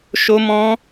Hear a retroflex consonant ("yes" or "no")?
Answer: no